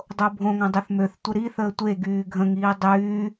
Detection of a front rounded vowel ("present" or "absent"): present